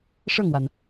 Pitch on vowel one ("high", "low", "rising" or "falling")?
falling